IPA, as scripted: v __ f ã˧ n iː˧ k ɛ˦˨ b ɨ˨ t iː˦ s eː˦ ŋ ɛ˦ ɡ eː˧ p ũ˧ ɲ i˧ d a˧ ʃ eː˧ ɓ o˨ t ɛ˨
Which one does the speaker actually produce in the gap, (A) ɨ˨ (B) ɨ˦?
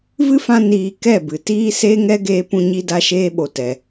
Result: B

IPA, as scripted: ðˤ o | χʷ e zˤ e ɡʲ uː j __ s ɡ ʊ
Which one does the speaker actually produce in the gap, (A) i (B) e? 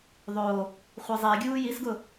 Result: A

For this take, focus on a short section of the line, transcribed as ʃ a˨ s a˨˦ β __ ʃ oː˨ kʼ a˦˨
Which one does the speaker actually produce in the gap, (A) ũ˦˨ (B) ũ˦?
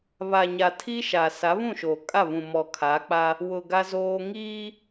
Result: A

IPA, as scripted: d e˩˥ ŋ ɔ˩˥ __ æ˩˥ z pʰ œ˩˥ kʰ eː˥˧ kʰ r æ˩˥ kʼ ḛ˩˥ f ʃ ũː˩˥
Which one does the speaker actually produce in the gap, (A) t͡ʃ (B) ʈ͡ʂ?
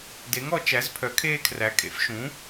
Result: A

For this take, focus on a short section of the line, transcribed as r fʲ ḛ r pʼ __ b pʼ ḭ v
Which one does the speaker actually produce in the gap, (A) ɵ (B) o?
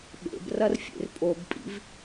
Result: B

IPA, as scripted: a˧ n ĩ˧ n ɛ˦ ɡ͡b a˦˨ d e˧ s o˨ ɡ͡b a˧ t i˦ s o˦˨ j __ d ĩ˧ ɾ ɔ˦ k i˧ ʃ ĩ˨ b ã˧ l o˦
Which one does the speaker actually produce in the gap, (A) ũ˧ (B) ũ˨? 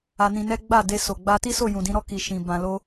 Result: B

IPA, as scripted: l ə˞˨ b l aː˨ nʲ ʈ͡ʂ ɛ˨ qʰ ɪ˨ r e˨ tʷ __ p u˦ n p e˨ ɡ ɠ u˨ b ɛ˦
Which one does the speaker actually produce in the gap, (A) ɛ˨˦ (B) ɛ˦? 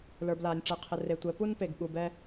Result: A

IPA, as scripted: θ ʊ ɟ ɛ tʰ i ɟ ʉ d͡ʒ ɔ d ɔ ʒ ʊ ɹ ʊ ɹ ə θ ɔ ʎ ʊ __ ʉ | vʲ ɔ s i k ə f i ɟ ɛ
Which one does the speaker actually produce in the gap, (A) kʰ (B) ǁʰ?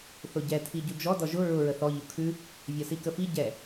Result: A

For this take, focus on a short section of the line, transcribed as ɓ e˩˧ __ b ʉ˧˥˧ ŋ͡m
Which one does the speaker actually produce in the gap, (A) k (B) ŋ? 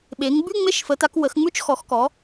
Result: B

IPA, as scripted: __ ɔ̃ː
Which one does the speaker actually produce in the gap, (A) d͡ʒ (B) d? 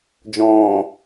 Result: A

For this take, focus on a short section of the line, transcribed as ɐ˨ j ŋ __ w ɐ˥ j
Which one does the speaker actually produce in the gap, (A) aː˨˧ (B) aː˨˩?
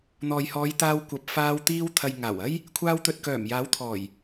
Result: B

